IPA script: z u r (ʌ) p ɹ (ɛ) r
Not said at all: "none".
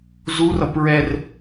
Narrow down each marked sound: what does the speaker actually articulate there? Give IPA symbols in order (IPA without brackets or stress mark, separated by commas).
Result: ʌ, ɛ